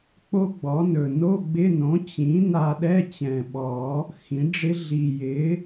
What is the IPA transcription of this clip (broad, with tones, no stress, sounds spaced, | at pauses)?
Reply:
k͡p o˦˥ ɡ͡b ɔ˩˥ n ɵ˨˩ n o˧˥˧ ɡ͡b ɪ˧˥˧ n õ˩˥ t͡ɕ ĩ˩˥ n a˧ ɗ ɛ˧˥˧ t͡ɕ ɛ̃˨˩ ɓ ɔ˨˩˦ | x ĩ˩˥ ɖ͡ʐ ɪ˦˥ ɮ i˨˩ j ɪ˩˥